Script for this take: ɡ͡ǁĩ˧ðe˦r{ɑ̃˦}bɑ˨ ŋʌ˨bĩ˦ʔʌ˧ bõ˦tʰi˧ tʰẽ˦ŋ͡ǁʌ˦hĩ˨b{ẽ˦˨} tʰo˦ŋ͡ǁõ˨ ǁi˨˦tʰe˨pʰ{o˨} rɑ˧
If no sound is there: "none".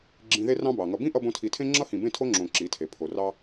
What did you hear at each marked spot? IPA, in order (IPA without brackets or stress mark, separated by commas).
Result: ɑ̃˦, ẽ˦˨, o˨